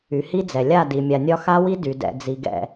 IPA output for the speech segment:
y˨ h i˦ d͡z ɛ˨ lʲ a˦˨ d i˨ mʲ a˨ nʲ ɒ˦ x a˦ w i˦ d y˨ d ɛ̰˨ d͡z i˨ ɡ ɛ̰˨

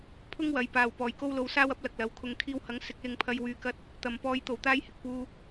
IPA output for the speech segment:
pʰ ʊ˥ ŋ w ɐ˨˧ j p aː˨ w p ɔː˨ j k o˥ w l o˧ w s aː˥ w ɐ˥ p̚ l ɐ˨ k̚ l ɐ˨˥ w kʰ ʊ˨ ŋ kʰ iː˧ w h ɐ˨˥ ŋ s ɪ˧ k̚ l ɪ˧ ŋ pʰ ɐ˧ j w yː˨ k ɐ˧ t̚ | t̪ ɐ˨ m p ɔː˧ j t̪ o˨˩ w t̪ aː˥ j h ɪ˨ k̚ p uː˧

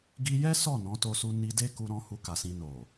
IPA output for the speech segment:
ɡ i˧ j ɛ˦ s ɔ˦˨ n ɔ̃˨˦ t o˧ s u˧ n i˧ d e˦ k u˧ ɾ ɔ̃˧ h u˧ k a˨ s ĩ˧ n o˨

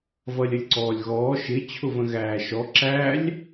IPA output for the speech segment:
v ʌ lʲ ə lʲ ǀ ɔː lʲ ɣ ɔː ʃ ɪ t͡ɕʰ ʊ v ə̃ ɣ æː ʃ ɔ ǁ æ lʲ

